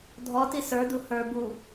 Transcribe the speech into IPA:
dʱ ɔ t i s ə˞ d u h ə˞ b u

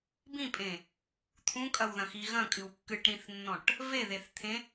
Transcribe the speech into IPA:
b ĩ pʼ ẽ | t̪ʰ ũ kʼ ɐ w ð ɐ̃ x i ɣ ɐ̃ kʼ ɨ w kː ɨ ʈ ɾ ĩ θ nː ɔ̃ ʈ | v e ð e θ t̪ʰ ẽ

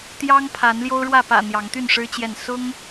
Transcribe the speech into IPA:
t̪ j ɑ˦ ŋ pʰ a˨˦ n l j o˦ ʊ̯ ɻ w ä˥˨ p ä̰˨˩ n̪ j ɑ˨˦ ŋ t̪ y˥˨ n ʂ ɻ̩˦ t͡ɕ j ɛ˥˨ n s ʊ˦ ŋ

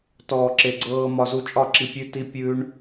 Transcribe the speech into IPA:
t ɔː˨ ǁ e˨ ɡ͡ǀ ɤː˧ m ɒ˧ z u˧ t͡ʃʼ ɒ˦˨ ǁ i˧ pʲ ʉ˦ t i˦ pʲ ʉː˦ ɳ

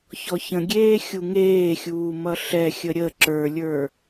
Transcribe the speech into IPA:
ç ɔ ç ə̃ ɡʲ eː xʲ u ŋ eː xʲ uː m ʌ ɬ ɛ xʲ ə ɾʲ ə ǁ ə˞ lʲ ə˞

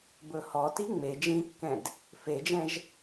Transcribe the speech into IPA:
b ɵ h ɔ t i ŋ͡m e d͡ʒ ĩ kː ɛ̃ d | f e d͡ʒ ɛ̃ ʒ

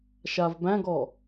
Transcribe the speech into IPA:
ʃ a v b æ̃ ɡ ɔ

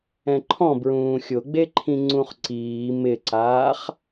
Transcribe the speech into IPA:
ɛ̃ ǃʰ ɔ̃ b ɹ ũː xʲ ʊ ɡ͡b e ǃʰ ĩ ŋ͡ǀ ũ χ ǀ iː m ɪ ǀ aː χ

